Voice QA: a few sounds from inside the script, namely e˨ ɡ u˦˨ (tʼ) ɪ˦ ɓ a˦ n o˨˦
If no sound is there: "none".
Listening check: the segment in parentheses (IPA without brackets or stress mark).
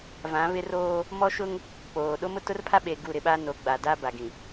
ɾ